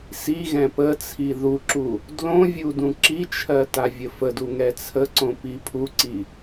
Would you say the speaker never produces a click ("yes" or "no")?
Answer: no